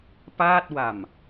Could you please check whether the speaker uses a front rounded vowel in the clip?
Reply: no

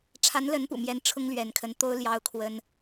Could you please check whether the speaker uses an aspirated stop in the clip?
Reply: yes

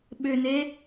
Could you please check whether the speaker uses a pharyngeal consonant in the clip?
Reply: no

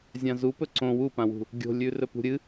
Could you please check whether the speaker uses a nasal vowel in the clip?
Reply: yes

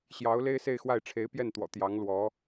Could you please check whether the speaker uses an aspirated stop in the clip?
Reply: yes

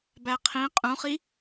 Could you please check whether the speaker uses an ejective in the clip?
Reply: yes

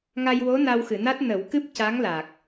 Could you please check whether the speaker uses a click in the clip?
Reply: no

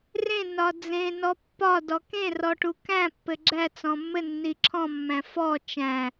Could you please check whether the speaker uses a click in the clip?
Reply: yes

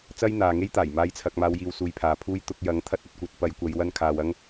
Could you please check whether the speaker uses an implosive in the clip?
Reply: no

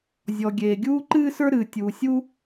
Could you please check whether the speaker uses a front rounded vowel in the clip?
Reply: no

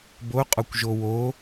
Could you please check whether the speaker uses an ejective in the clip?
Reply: yes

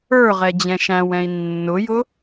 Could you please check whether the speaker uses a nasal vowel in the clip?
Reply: yes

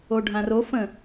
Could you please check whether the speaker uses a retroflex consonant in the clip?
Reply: yes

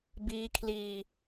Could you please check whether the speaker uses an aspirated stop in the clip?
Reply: yes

